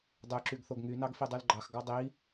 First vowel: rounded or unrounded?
rounded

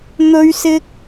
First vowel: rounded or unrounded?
rounded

